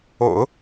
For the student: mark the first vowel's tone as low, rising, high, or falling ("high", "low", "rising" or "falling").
low